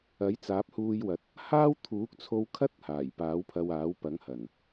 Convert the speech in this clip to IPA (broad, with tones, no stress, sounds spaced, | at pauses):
ɐ˨˥ j t͡s aː˨˥ p̚ h uː˧ j w ɐ˨˥ t̚ | h aː˥ w t̪ʰ uː˨˥ k̚ t͡sʰ o˧ w kʰ ɐ˥ t̚ h aː˨˩ j p aː˨˥ w pʰ ɐ˧ w aː˨˥ w p ɐ˨˥ ŋ h ɐ˨˩ n